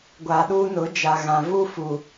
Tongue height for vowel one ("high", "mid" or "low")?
low